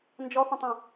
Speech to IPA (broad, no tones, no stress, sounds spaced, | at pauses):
n d͡ʒ ɔ θ ə̃ tˤ õ